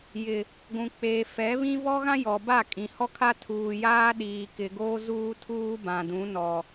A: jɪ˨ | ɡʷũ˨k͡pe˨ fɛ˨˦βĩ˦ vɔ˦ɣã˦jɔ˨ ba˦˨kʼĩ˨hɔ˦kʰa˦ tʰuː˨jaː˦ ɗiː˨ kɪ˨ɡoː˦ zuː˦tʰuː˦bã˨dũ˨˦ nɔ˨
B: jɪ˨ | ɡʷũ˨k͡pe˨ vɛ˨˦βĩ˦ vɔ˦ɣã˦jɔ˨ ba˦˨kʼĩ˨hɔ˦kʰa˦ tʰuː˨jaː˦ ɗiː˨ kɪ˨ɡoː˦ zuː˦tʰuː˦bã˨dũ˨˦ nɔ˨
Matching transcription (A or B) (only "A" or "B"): A